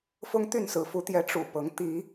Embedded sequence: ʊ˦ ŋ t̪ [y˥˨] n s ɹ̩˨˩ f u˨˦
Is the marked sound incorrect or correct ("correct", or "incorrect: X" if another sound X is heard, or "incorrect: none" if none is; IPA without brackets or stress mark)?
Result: correct